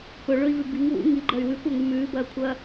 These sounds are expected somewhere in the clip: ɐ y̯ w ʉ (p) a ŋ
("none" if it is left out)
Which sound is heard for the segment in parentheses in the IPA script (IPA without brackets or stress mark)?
kʷ